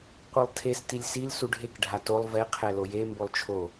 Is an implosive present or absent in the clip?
absent